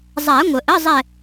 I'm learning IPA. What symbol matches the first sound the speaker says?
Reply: zˤ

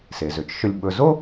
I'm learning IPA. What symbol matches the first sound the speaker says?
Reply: s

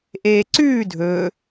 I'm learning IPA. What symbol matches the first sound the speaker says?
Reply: ʔ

